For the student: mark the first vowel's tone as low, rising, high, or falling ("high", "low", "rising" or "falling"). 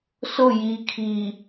falling